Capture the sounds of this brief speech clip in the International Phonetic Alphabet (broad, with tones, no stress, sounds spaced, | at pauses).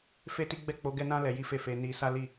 f e˦ t i˦ ɡ͡b ɛ˦˨ k͡p o˨˦ ɡ ɛ˦ n ã˦ l ɛ˧ j i˦ f e˦˨ f e˧ n i˧ s a˦ l i˦˨